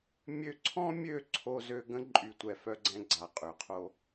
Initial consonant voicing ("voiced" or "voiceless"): voiced